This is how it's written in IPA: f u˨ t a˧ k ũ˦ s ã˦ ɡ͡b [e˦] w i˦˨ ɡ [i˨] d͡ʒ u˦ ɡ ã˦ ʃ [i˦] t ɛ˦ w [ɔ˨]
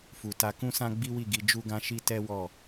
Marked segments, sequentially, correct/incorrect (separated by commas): incorrect, incorrect, correct, incorrect